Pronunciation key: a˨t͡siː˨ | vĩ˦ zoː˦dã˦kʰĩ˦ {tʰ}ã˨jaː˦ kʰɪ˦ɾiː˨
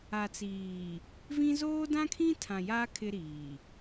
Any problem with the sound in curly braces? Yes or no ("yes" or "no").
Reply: no